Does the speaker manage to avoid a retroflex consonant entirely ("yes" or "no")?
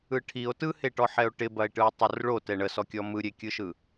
no